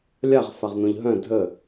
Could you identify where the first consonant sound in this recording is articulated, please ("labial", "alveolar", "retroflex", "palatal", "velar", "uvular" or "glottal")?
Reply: alveolar